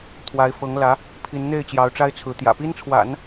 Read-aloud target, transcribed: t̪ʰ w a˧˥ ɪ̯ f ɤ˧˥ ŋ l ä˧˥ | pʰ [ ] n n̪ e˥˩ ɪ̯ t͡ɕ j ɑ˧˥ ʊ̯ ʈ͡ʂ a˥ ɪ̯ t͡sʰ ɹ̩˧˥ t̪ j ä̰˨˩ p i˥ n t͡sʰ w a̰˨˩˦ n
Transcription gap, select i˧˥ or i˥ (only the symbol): i˧˥